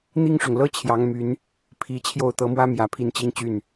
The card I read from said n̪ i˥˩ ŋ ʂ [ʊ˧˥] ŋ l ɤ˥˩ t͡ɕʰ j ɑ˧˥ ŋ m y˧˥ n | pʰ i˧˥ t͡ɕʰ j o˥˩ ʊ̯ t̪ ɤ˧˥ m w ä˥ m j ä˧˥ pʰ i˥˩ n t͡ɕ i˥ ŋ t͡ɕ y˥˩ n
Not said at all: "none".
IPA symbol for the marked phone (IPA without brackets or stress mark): ʊ˩